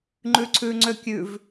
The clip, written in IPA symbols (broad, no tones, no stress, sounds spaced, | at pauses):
ŋ͡ǃ ʉ ǀʰ ʉ ŋ͡ǀ ø kʲ ʉ v